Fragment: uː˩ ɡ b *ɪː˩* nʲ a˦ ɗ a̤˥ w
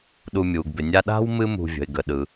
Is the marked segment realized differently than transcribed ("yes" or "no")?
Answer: yes